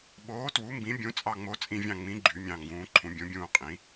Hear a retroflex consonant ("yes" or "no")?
no